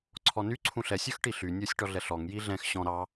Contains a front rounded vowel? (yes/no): yes